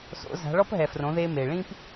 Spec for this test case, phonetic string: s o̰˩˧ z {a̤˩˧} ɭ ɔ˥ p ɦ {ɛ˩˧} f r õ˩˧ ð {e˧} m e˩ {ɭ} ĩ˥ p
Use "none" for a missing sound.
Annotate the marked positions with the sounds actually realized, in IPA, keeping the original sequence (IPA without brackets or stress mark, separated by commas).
a̤˩˧, ɛ˩, e˧, ɭ